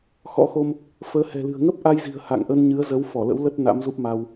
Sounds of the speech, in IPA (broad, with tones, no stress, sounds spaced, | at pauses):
x ɔ̰˧˥ x o˧ m | f əː˨˦ h ɛ̤˨˩ l ɨ̤˨˩ ə̯ ŋ ə˦˥ p̚ ʔ a˧ j z i̤˨˩ ə̯ h a̰˧˨ ŋ ʔ ə˧ n ɲ ɨ˨˦ ə̯ z ə˨˦ w f ɔ˧˩ l ə̰˧˥ w l ə˦˥ t̚ n a̰˧˥ m z u˦˥ p̚ m a˧ w